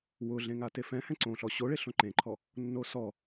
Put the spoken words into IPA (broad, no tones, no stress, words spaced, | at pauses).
wʊɮẽŋa tefɛ̃hɛ̃ ǀõɬɔ ɕoɭeɬõ ǃẽǃʰɔ | nːosɔ